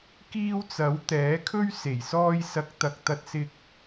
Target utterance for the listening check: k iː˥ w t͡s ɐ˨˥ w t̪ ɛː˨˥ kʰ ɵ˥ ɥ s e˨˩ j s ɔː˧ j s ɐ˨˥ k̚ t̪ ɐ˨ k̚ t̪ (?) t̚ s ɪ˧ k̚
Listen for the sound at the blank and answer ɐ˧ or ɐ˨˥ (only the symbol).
ɐ˧